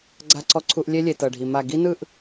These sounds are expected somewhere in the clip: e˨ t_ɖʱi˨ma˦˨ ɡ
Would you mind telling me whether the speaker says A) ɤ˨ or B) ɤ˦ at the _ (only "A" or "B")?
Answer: A